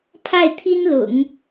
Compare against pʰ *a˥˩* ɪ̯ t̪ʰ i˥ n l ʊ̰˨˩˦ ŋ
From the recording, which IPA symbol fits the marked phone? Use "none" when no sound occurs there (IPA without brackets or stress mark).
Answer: a˥˩